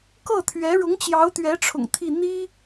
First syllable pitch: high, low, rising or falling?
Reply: falling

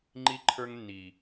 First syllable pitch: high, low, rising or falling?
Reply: high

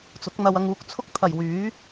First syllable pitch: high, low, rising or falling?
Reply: rising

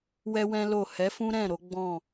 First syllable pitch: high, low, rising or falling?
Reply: high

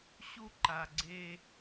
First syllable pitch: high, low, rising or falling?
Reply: high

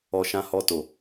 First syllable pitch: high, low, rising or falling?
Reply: low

